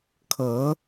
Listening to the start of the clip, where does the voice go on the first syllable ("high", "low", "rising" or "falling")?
rising